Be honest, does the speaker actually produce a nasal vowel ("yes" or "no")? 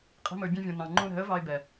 yes